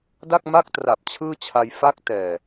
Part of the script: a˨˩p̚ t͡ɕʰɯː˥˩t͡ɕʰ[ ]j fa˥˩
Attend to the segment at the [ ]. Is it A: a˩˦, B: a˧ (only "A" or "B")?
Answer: B